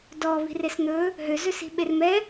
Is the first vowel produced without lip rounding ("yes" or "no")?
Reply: no